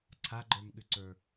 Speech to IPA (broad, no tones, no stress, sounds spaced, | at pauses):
ǀʰ a ɡ͡ǃ ə˞ m ɠ ʏ ǀ ə˞